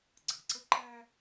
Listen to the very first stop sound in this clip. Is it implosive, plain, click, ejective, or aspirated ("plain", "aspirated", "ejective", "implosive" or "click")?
click